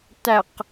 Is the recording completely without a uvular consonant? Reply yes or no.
no